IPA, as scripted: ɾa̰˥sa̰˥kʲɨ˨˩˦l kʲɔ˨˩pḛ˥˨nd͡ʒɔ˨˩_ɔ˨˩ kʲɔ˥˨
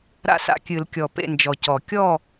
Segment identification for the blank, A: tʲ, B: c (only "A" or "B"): B